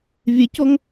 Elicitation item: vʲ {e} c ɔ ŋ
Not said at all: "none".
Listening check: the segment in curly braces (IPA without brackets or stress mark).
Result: e